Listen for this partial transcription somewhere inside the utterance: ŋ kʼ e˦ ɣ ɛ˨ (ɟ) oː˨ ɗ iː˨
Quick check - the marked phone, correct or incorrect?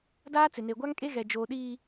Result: incorrect